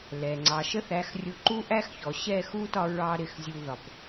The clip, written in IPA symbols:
l ɛ˨ ŋ͡ǀ ɑ˨ ʃ ə˦ θ æ˨˦ x rʲ ʊ˧ ǃ u˦ ʔ æ˦ x ç ɔ˨ ɕ ɛ˦˨ x u˦ t ɒ˧ ɹ ɑ˦ ɾ ɪ˧ x zʲ u˧ ð ɒ˨ p

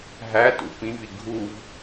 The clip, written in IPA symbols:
ɦ æ t ṵ p ĩ v i ɡʱ u v

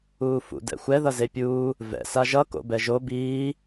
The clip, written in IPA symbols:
uː f ṵ d ɛ̰ xʷ ɛ ð ʌ z e pʲ uː | v ɛ̰ s a ʒ ʌ k o̰ b ɛ ʒ o b iː

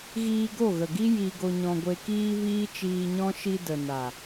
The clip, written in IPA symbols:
ɣ iː˧ ɡ o˦˨ ɣ ə˨ ɡ i˦ j i˧ ɡ o˧ ɲ ɔ̃˧ ɡʷ e˧ k iː˦ v iː˦ t͡ʃ iː˧ ɲ ɔ̃˦ ʃ i˧ d ə˨ n a˨

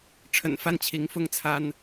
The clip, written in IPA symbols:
ʈ͡ʂʰ ə̰˨˩ n f a˥˩ n t͡ɕʰ i˧˥ ŋ f ʊ˥ ŋ t͡sʰ a˥ n

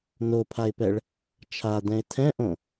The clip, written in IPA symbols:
n o pʰ a ɪ̯ p ɛ ɭ | t͡ʃʰ a d ɛ̃ ɪ̯ tʰ ɛ̃ ʔ õ

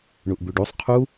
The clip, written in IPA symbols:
ɳ u ʔ b y ɖ u sˤ qʰ u

